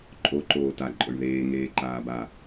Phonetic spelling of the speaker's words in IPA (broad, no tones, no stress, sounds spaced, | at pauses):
ǃʼ o ǃ oː t a ǃʼ ʊ ɳ ð eː ŋ eː ǃ aː b a